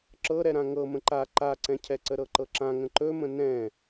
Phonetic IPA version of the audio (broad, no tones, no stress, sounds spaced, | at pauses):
ǁ ɤ ɾ ɛ ɾ ã ŋ ɤ m ə̃ ǃ a ǃ a ǀ ɛ̃ cʰ ɛ ǀ ə ɾ ɤ ǃ ɤ ǁ ã ŋ ə̃ ǃ ɵ m ə̃ n ɛ̃